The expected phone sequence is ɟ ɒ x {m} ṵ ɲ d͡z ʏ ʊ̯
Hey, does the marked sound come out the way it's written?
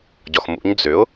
yes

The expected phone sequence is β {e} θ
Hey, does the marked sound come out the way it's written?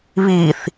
no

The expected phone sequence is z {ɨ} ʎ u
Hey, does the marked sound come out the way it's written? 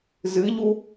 yes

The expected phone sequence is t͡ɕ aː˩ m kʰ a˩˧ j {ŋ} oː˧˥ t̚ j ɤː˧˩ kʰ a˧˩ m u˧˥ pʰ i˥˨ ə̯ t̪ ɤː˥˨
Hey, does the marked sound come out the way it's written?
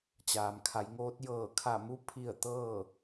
yes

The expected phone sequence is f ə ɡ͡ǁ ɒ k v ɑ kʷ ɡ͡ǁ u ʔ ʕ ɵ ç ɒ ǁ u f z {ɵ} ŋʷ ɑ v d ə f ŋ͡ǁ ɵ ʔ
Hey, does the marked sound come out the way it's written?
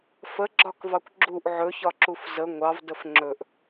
no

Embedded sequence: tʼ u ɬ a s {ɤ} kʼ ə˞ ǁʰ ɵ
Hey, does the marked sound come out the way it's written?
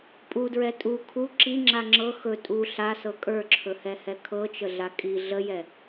yes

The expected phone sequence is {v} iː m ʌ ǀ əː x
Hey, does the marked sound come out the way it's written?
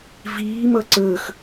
yes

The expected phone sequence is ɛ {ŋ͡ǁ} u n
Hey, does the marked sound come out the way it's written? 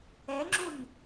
yes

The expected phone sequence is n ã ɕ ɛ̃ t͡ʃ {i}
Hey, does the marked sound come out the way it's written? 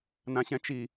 yes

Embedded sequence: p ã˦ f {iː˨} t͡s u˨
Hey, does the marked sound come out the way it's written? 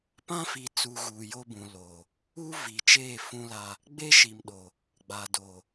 no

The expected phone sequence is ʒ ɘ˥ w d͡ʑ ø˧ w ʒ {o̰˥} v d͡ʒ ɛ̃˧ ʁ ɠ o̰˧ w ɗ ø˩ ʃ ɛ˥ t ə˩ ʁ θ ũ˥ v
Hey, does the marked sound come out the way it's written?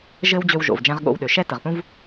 no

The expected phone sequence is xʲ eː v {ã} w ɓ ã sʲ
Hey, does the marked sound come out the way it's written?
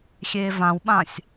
yes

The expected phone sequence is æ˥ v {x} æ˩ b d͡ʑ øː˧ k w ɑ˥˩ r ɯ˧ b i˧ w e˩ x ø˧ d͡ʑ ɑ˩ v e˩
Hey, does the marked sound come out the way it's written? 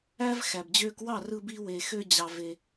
yes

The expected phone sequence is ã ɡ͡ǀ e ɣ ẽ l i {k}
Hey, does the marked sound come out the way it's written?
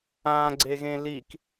yes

